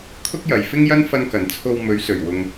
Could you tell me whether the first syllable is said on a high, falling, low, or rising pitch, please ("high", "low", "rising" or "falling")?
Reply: high